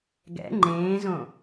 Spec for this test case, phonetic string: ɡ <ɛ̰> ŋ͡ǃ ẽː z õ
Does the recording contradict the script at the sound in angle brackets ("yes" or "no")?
no